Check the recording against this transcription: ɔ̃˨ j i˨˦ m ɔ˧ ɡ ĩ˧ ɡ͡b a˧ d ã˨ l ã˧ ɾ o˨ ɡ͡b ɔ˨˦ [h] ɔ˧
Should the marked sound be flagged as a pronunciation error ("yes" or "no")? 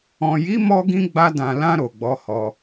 no